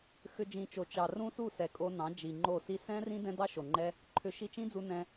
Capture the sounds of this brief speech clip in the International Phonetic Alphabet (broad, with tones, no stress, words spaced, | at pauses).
xʏ˧d͡ʒĩ˨t͡ʃo˨ t͡ʃɑ˨ rũ˦su˦˨sɛ˨kʼo˧ nɑ̃˨˦d͡ʒi˨ŋ͡ǃo˦˨si˦ sɛ̃˦rĩ˦ dɛ̃˦dɑ˦ʃo˨ŋ͡ǃɛ˦ | ǃʰʏ˨˦ ʃi˧t͡ʃĩ˦d͡zu˧ nɛ̃˧